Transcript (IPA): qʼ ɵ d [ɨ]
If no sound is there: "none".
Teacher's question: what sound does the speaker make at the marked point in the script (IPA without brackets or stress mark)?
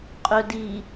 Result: i